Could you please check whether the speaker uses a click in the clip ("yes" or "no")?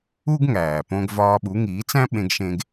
no